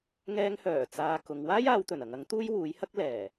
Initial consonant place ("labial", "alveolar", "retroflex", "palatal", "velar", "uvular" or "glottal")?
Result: velar